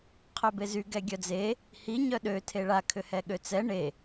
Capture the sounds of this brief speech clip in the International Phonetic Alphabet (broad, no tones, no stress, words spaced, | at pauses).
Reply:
qʰœbezy ɡɛɡʲœd͡ze | hiɲœ ɗøtʰe ɭakʰʏhɛ ɠøt͡sɛ ɳe